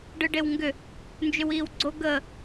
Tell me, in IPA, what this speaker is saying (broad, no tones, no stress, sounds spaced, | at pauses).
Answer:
ɖ ɯ ɖ e w ŋ ɡ ʏ | n d͡ʒ ʏ w iː w ɡ͡ǀ o ɡ ə